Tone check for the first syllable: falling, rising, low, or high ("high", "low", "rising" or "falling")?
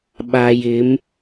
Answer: low